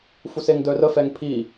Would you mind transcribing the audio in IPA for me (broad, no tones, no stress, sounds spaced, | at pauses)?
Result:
f u s e ŋ d œ r ə f ɛ ŋ pʰ i